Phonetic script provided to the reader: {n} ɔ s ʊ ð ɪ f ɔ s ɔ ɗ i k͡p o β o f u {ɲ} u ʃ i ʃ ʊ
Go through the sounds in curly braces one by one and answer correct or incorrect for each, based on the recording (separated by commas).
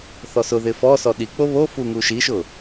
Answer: incorrect, incorrect